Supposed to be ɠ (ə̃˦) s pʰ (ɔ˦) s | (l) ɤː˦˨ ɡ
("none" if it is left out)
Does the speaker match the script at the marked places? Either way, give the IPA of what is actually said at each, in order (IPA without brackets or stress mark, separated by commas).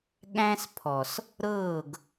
æ̃˦, ɔ˨, ɾ